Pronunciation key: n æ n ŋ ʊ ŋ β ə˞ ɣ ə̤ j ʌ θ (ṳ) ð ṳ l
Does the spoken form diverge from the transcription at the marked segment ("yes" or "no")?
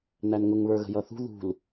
no